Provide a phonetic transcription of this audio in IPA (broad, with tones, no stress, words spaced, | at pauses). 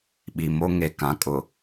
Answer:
ɓi˨mo˦ ŋe˨kã˨˦ kʼʊ˨